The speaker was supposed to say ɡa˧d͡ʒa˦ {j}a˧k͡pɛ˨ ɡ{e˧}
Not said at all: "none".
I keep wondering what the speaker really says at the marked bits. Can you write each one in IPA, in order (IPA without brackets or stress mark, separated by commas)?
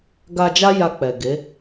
j, e˨˦